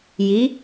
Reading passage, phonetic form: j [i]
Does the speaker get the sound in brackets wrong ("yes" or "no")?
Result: no